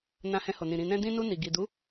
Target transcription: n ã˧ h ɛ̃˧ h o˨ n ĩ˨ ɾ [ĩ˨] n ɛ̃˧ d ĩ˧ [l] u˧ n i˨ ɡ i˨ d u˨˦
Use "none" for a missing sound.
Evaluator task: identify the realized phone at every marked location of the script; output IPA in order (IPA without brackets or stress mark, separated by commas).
ĩ˨, n